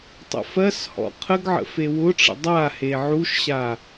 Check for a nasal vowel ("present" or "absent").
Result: absent